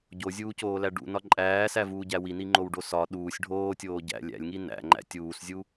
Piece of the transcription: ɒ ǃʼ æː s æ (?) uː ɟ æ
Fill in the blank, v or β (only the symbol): v